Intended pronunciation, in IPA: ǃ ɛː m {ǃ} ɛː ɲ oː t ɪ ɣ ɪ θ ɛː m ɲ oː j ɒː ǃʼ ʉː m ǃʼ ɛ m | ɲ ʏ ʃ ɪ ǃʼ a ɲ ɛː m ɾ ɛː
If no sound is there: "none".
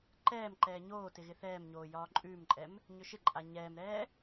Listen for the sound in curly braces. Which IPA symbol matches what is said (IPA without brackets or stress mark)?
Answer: ǃ